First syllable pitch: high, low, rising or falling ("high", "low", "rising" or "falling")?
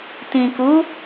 low